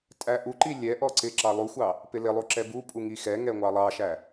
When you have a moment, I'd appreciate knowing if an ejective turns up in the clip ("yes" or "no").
yes